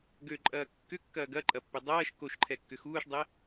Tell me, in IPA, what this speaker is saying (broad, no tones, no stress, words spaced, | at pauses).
ɡøǃʼɐː kːʏkːɐː ɡɐǃʼɐpːʏ dˤɐːʃ koʃǃʰɛkːʏ xuːʃdˤɛ